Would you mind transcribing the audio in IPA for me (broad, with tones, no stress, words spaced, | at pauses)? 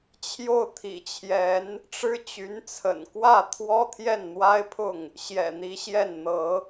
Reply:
t͡ɕʰjo˥˩ʊ̯t̪ʰḭ˨˩t͡ɕʰjɛ˧˥n | ʈ͡ʂɻ̩˥t͡ɕy˧˥nt͡sʰə̰˨˩n kwä˥˩ t̪ʰwɔ˥t̪ʰjɛ˥˩nn̪wa˥ɪ̯pʰʊ˥˩ŋ | ɕjɛ̰˨˩n̪i˧˥ɕjɛ˥˩n n̪ɤ˧˥